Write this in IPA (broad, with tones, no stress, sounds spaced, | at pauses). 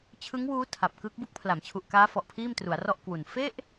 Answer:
t͡ɕʰ ɯ˦˥ ŋ w uː˦˥ tʰ a˨˩ p̚ k ɯ˦˥ k̚ b u˦˥ k̚ pʰ l a˩˦ m t͡ɕʰ u˨˩ ʔ k aː˦˥ f ɔ˨˩ ʔ pʰ iː˥˩ m t r u˩˦ a̯ r ɔ˥˩ ʔ k w u˨˩ n f e˥˩ ʔ